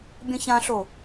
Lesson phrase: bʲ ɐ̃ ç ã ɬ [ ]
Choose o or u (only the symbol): o